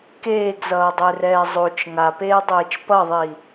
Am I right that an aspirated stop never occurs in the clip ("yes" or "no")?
yes